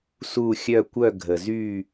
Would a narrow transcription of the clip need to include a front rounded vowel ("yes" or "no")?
yes